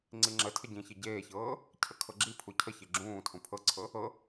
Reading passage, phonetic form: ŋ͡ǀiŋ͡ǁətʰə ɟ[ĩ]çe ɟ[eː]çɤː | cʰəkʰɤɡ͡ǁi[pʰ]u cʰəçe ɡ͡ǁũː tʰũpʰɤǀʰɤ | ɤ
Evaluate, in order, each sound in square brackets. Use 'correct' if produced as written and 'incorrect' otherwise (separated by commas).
correct, correct, correct